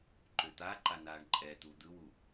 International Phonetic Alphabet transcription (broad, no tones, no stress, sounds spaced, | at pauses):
ǃ ø t̪ a ǃ a n aː ɳ ǃʼ ɛ t̪ u d̪ ɯ w u